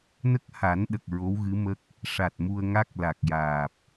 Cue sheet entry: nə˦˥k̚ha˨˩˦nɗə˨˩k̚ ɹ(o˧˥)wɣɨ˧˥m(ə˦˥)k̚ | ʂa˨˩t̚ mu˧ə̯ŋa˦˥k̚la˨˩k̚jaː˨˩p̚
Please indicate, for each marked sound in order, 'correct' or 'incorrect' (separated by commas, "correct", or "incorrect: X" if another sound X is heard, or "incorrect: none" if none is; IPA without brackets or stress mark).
correct, correct